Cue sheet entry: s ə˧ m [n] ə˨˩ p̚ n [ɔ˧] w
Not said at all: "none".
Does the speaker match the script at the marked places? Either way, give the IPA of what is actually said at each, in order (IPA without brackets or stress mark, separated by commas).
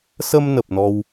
n, ɔ˧